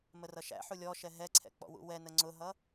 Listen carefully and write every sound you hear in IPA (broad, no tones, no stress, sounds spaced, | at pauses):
m ə r ʌ ʃ æ̰ ħ u lʲ ɔ ʃ ɛ ɦ ɛ ǀʰ ɛ̰ k͡p ɔ̰ w ṵ w ɛ n ə ŋ͡ǀ ʊ ɦ ʌ